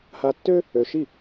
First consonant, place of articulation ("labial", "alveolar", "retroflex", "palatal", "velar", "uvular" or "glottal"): glottal